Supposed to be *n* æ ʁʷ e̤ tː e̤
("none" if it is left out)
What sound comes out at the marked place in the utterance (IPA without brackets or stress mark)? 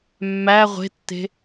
mː